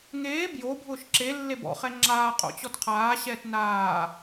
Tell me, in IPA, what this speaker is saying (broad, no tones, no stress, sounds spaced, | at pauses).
ŋ eː b j o bʱ ʊː ʃ ǁ e lː e b ɔ̰ χ ɛ ŋ͡ǁ aː qʼ o̰ t͡ɕ ɔ t qʰ aː ɕ ɛː t n aː